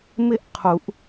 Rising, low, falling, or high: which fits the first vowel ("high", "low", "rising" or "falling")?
falling